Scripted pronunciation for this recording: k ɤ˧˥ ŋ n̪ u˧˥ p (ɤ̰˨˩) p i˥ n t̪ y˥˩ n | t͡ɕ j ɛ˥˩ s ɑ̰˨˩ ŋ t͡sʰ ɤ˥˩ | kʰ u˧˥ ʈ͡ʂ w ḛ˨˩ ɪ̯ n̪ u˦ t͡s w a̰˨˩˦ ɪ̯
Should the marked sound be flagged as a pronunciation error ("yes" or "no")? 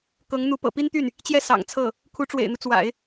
no